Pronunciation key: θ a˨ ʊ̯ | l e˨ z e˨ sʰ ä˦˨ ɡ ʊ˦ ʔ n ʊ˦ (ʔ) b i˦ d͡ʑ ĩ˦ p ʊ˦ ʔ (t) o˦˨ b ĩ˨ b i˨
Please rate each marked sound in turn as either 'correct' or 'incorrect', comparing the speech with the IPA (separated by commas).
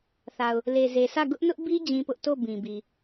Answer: correct, correct